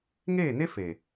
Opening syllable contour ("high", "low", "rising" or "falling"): falling